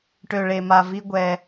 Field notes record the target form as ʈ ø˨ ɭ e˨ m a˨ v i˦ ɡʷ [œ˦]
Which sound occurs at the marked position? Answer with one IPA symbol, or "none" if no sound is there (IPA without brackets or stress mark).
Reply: ɛ˦